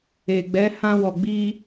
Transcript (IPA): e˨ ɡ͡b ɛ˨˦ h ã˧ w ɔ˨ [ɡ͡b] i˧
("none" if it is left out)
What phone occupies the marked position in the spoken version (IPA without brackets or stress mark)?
ɡ͡b